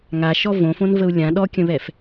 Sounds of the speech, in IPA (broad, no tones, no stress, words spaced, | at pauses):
ŋaʃɔ võfõnvəu̯ lʲã ɗɔkʲə̃βɛf